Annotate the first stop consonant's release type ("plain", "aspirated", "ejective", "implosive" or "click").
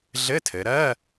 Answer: aspirated